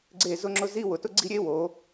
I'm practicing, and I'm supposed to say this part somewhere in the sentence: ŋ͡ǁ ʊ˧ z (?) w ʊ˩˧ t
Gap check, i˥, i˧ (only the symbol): i˥